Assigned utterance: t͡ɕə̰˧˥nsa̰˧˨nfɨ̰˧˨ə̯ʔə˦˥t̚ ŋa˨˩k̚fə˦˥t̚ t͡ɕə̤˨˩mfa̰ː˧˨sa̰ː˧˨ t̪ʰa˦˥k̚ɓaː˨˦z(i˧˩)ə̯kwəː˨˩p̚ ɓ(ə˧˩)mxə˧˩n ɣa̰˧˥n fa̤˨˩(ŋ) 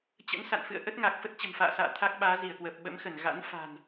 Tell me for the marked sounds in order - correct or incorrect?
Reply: correct, incorrect: ə̰˧˥, incorrect: n

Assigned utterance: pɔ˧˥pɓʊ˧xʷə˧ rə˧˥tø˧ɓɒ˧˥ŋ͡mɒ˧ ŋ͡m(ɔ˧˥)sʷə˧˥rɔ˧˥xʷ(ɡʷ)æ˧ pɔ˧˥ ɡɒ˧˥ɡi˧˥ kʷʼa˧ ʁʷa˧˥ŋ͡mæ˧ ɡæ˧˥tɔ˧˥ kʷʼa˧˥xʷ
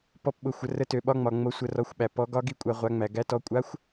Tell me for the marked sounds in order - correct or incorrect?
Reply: incorrect: o˧˥, incorrect: ɓ

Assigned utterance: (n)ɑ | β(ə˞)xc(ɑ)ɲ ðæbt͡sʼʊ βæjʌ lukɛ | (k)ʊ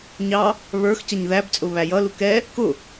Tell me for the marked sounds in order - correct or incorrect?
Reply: incorrect: ɲ, correct, incorrect: ʌ, correct

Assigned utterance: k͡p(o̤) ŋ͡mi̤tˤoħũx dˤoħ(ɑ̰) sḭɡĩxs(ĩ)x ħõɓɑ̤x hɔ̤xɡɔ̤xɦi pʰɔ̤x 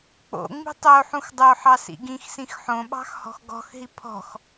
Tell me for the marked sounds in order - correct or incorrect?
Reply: incorrect: o̰, incorrect: ɑ, correct

